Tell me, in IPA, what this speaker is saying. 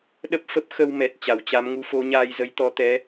ɗ ə˦˥ p̚ f ə˦˥ p̚ x ə˧ w m ɛ˨˩ t̚ t͡ɕ a˨˩ w t͡ɕ a˨˦ m ŋ u˨˦ f o˨˦ ɲ aː˧ j z ə˨˦ j t̪ ɔ˨˦ t̪ ɛ˨˦

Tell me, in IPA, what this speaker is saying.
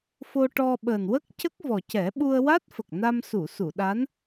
f o˧ ʈ ɔ˧ ɓ əː˨˩ n w ə˦˥ k̚ c ə˦˥ k̚ v ɔ˨˩ c ɛ˨˩˦ ɓ u˧ ə̯ w a˦˥ t̚ f ə˨˩ k̚ n a˧ m s u˨˩˨ s u˨˩˨ ɗ a˧˥ n

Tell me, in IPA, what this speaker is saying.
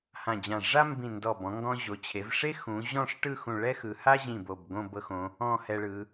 h ã˧˩ d͡ʑ ã˧˩ ʐ a˥ m b ĩ˧˩ n d ɔ˧˩ b ɔ̃˩˧ ŋ ɡ ɔ̃˧ ʑ o˩˧ t͡ɕʰ e˩˧ v ʂ e˥ x ũ˩˧ ʑ ɔ̃˥˧ ʂ ʈ ɯ˥˧ x ũ˧˩ ɭ ɛ˥ x ɯ˩˧ h a˥ ʑ ĩ˧˩ b o˧˩ b ɡ õ˥˧ b ɤ˧ x õ˩˧ | ɔ̃˥˧ h ɛ˧ ɭ ɯ˩˧

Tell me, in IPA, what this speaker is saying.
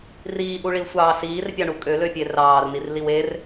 r iː ʔ u ɭ i l sʷ ɑː s iː r pʲ ɑ ɳ u kʼ ø l ø pʲ e r ɑː r n i r l i w e r

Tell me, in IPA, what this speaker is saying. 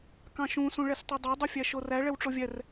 k ɑ̃ ʃ ũ s ũ ɭ ɛ s tˤ ɛ dˤ ɑ dˤ u fʲ æ ʃ o r æ ɭ ɛ w ʈ͡ʂ o vʲ ɛ r

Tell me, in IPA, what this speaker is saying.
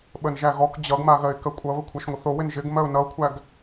ɓ ə n ʒ æ ɣ ɔ k d͡ʑ ʌ ɡ m a ɣ ɜ ɪ̯ k ɜ kʷʼ ʌ β ə kʷʰ a ʃ ŋʷ ɪ θ o w ɪ n ʒ ɪ ɡ m ɜ ʊ̯ n ʌ ʊ̯ kʷʰ æ ɡ

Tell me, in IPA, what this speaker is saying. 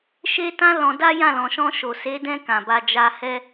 ʃ e˦ t ã˦ l ɔ̃˧ d a˦ j ã˦˨ l ɔ̃˨ ʃ ɔ̃˧ ʃ o˨ s e˨˦ d ɛ̃˧ k ã˨ b a˧ d͡ʒ a˦ h ɛ˦

